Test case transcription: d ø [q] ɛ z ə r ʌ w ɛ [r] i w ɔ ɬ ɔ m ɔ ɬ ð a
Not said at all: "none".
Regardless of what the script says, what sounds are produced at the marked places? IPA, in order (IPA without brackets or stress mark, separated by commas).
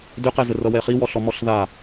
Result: q, χ